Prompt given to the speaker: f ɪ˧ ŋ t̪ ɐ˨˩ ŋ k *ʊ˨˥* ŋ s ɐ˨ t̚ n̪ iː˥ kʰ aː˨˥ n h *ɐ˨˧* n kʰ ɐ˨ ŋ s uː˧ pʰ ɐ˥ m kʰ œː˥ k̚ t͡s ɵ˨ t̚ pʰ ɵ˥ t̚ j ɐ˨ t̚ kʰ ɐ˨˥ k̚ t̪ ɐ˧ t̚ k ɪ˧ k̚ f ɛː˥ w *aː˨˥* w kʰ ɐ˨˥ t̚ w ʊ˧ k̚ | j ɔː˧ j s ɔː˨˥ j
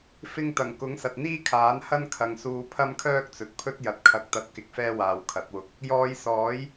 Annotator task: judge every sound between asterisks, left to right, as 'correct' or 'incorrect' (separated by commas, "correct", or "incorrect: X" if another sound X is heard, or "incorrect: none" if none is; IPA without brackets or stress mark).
correct, incorrect: ɐ˥, incorrect: aː˨